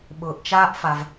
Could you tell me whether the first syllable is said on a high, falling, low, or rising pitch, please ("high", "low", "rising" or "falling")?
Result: low